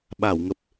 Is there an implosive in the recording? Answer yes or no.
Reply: yes